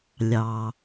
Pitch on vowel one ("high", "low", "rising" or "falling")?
low